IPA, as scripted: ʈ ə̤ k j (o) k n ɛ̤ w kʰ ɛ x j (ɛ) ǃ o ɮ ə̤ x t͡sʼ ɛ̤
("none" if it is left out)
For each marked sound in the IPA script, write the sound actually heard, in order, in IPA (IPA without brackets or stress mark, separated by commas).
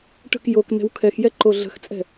o, ɛ